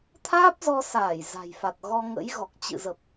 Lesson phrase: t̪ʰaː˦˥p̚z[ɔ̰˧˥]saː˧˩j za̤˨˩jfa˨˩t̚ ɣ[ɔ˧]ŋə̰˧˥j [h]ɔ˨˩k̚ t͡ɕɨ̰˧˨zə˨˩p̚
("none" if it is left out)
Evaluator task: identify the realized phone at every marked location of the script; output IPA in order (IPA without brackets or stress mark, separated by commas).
ɔ˧, ɔ˧, ɣ